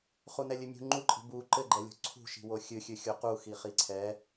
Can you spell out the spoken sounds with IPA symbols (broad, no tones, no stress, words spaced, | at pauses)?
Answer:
χunɛlʲɨmʲṳ ŋ͡ǃuǃʼi̤ bu ǃɘɡ͡ǃɛlʲo̤ ǀʰṳʃi̤wo xʲɨxʲɨ xʲoquxi χiǀʰɛ